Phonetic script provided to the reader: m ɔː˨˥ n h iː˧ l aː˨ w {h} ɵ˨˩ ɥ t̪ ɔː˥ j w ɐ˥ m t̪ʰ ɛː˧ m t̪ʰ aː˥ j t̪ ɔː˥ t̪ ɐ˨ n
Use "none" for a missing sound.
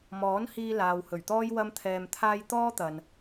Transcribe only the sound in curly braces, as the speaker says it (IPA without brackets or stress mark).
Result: h